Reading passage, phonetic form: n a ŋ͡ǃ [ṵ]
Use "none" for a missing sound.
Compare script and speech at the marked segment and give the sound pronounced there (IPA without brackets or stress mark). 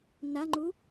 u